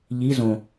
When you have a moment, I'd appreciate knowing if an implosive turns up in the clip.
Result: no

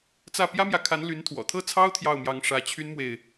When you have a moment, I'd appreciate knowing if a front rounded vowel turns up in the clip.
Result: yes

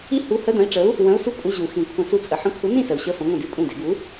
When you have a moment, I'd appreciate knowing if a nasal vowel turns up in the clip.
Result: yes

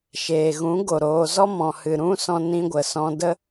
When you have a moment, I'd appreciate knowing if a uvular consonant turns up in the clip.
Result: no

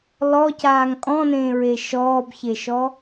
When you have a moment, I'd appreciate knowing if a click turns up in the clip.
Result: no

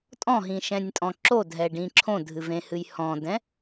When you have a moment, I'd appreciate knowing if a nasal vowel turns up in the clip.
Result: yes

